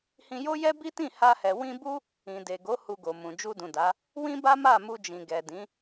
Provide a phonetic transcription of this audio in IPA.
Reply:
hĩ˧jo˦jɛ˦ bi˦tĩ˦˨ha˧hɛ˨ wĩ˧bu˦ | ĩ˨de˨ɡo˨˦ hu˧ɡo˨mũ˨ d͡ʒu˧dũ˨da˨˦ | wĩ˦ba˦ma˦˨ mu˧d͡ʒĩ˨ɡɛ˨dĩ˨˦

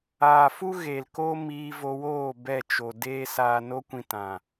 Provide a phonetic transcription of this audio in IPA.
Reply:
aː˨fu˦ ɣe˨lko˦ miː˧vo˧woː˦˨ bɛ˦˨t͡ʃo˨ deː˦ saː˧no˦kʷĩ˧ tã˨

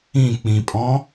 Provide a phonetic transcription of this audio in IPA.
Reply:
ĩ k͡pĩpʼɔ̃

